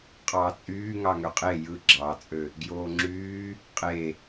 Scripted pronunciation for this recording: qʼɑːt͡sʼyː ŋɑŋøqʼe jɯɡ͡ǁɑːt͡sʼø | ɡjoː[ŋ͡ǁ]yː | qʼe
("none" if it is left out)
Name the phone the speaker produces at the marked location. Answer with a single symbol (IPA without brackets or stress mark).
ŋ͡ǁ